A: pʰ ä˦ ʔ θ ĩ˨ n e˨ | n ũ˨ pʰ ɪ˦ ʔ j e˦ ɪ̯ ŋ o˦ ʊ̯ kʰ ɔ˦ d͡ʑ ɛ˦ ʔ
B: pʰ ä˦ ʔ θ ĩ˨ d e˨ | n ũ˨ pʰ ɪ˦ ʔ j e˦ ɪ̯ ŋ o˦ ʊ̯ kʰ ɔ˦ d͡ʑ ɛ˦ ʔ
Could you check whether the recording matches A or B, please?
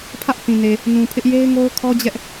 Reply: A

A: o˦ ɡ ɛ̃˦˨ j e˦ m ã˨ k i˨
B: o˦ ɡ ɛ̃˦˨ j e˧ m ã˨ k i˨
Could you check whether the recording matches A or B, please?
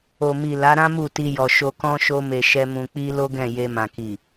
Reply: B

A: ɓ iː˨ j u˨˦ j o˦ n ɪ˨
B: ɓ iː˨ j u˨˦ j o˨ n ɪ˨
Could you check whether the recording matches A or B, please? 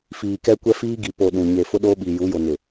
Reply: B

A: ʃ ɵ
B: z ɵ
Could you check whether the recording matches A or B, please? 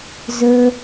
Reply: B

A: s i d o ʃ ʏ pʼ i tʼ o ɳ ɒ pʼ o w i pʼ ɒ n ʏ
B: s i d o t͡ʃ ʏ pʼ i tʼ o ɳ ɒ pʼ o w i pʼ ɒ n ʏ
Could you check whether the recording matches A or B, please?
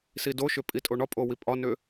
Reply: A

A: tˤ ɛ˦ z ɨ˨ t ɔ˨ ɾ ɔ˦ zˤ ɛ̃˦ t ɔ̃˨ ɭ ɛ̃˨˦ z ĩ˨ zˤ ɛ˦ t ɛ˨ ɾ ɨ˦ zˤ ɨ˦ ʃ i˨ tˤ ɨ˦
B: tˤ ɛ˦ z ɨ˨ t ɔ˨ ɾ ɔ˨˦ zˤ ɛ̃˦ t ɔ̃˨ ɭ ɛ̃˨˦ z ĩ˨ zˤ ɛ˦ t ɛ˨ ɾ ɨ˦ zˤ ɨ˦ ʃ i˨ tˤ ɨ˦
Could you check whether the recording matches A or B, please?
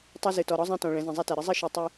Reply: A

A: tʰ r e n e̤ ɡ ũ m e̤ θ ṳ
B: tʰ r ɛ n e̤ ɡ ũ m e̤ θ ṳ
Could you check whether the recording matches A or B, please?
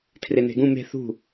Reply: A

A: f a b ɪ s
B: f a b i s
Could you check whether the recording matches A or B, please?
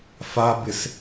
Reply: A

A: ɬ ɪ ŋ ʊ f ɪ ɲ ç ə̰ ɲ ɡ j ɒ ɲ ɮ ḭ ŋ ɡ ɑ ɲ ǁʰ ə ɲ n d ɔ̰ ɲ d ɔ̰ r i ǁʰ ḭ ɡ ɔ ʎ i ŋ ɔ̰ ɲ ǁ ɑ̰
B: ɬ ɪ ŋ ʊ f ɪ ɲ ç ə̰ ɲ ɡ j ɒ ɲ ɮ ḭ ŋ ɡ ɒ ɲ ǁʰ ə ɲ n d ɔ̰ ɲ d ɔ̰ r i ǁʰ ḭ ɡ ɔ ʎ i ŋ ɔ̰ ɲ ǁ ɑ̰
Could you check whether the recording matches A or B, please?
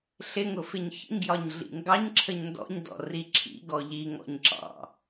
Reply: A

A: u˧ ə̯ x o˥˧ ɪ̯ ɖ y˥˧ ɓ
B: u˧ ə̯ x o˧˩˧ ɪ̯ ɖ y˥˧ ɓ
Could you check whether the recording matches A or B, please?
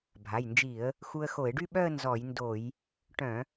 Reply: B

